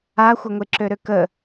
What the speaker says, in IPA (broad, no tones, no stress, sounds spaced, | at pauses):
a xʷ ə ŋʷ e ǁ ø ɾ ø k ə